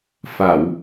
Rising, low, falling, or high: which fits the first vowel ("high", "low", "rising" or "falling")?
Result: low